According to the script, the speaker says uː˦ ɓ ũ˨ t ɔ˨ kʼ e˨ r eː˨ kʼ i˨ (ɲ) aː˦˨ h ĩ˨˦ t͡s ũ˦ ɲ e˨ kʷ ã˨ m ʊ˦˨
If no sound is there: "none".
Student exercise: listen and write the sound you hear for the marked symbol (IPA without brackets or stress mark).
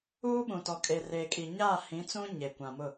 ɲ